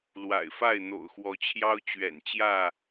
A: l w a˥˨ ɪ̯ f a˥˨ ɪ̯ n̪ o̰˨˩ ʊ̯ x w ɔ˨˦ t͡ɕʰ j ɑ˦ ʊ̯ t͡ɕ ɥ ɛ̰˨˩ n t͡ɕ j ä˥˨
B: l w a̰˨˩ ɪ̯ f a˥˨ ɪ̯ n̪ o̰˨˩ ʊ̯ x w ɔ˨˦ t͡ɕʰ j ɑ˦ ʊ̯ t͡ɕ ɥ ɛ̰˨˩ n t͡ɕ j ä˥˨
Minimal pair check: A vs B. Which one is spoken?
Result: B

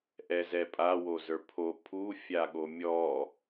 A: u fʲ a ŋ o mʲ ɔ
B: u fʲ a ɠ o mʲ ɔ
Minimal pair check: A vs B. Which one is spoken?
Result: B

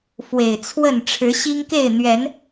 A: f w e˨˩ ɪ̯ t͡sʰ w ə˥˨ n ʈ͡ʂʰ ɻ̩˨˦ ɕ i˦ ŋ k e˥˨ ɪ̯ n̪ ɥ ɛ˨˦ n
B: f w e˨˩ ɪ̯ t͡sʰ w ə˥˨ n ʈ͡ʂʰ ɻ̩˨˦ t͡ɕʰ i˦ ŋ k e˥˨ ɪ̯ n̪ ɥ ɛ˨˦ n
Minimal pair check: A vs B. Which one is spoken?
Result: A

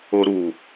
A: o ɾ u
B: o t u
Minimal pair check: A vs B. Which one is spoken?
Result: A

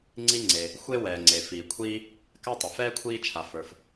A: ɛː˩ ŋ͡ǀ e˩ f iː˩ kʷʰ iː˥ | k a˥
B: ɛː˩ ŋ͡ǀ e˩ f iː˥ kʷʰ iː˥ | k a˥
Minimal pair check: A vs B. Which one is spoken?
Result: A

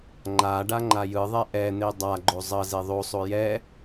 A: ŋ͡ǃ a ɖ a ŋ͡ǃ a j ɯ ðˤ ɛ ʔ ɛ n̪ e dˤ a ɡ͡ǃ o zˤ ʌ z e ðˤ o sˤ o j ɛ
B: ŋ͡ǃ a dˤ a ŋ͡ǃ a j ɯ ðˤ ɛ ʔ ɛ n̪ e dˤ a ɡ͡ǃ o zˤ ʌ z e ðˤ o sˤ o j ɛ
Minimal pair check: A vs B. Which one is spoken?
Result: A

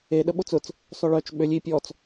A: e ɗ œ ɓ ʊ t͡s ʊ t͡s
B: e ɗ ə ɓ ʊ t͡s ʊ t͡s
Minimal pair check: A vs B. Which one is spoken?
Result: B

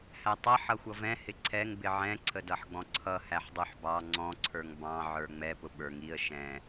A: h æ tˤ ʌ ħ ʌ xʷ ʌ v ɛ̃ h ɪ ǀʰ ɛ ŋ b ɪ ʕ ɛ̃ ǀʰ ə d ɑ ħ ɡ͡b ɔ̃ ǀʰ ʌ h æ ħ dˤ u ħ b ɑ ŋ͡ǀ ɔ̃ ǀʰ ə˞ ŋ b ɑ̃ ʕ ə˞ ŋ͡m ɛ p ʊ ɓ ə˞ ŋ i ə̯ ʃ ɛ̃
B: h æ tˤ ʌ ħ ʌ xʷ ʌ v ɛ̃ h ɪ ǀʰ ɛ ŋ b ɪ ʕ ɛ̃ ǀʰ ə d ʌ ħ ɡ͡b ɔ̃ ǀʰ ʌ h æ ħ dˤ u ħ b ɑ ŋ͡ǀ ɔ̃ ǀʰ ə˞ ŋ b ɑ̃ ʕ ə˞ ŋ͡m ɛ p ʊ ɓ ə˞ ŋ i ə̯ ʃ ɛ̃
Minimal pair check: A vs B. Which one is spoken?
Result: B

